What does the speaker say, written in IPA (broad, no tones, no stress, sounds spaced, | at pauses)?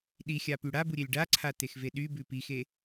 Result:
ɗ i xʲ a p y ɽ a b u ɾʲ e lʲ ɖ a ǀʰ a t e x v e ɗ y b ʉ p i x e